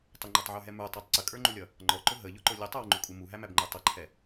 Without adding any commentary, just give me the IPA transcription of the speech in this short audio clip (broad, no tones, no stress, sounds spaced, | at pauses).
tˤ ə ŋ͡ǃ ɔ tˤ ʕ ə˞ ɦ ɛ m ə˞ tˤ æ tˤ ǀ ə kʼ ə˞ ŋ͡ǃ u lʲ ʌ | ŋ͡ǃ ɔ ǃ ʊ ɦ ə ʎ ʊ ǃ ʊ lʲ ə tˤ ə˞ w ŋ͡ǃ ʊ kʼ u m u ɦ æ m æ b ŋ͡ǃ ə˞ tˤ ʌ ǃʰ ɛ